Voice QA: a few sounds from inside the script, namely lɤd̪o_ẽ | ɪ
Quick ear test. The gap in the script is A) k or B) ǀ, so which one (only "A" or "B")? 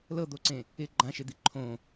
B